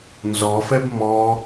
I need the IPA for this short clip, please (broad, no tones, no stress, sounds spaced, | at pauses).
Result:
n z ɔ f ɛ b m ɔ